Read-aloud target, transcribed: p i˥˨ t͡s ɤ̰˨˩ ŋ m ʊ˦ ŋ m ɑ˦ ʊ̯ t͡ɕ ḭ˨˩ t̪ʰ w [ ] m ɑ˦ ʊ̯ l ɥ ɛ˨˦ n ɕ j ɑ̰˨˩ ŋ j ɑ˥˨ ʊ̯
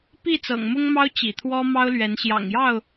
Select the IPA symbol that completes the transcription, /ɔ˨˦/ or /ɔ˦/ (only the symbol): ɔ˦